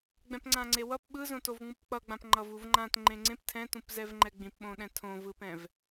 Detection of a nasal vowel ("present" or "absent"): present